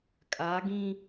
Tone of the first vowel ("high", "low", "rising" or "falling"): rising